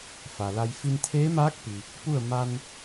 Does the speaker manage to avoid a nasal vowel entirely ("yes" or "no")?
yes